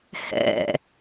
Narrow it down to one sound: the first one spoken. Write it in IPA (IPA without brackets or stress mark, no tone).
h